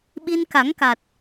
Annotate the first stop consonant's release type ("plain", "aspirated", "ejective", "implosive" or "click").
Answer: implosive